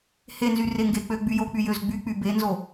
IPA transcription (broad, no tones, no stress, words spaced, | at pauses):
henzy reŋɡek͡pø ɡ͡byjok͡py jøzɡ͡byk͡py benzo